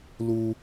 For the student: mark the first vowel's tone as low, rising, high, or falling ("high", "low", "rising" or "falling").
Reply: high